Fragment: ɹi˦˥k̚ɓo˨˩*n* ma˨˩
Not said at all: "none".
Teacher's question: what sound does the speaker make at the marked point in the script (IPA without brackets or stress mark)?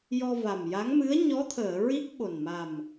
n